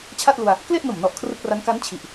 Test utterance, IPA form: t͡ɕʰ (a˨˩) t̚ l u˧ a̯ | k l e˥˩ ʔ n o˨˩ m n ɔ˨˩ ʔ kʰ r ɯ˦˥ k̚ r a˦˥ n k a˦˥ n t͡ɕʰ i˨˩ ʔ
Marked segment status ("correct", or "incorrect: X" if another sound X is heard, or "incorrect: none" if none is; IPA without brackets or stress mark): incorrect: a˥˩